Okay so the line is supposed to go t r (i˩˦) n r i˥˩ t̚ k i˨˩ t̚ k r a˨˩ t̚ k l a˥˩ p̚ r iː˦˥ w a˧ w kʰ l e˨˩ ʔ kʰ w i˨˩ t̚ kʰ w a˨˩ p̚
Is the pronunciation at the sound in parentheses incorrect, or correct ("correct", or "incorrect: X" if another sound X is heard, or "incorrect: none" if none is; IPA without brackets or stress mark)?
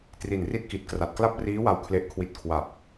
incorrect: i˨˩